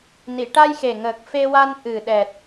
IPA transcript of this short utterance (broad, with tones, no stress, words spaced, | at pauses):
ni˨˩˨ʈa˧jxe˨˩ŋəː˨˩k̚ fe˧wa˧n ʔɨ˨˩ɗɛ˨˩t̚